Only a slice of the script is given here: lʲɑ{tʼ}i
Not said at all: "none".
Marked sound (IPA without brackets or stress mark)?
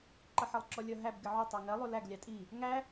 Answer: tʼ